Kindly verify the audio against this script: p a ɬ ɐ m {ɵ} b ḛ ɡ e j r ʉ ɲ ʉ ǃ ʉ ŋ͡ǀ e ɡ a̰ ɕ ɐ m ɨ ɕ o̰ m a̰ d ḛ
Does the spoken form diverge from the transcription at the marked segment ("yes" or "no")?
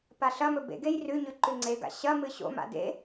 no